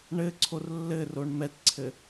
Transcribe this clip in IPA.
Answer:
ɳɘǀʰor lːɘroɳ mɛtǀʰɘ

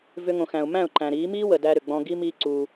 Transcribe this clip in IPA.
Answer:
vʏ˧ŋõ˨xæ̃˨ʊ̯ mæ̃˦˨ʊ̯ǃæ̃˨ɾiː˨˦ miː˦wə˨ dæ˧ɾʏ˨ ɡ͡bɔ̃˧ɡi˦miː˦ ǀuː˧

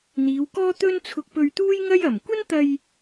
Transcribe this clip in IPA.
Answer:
n̪iː˨˧wkɔː˥t̪ɵ˥n t͡sʰʊ˧k̚pɵ˧ɥ t̪uː˥jŋɐ˥j ɐ˨˩mkʷɐ˥n t̪ɐ˧j

